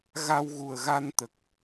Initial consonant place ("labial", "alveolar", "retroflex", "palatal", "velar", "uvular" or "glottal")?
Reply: velar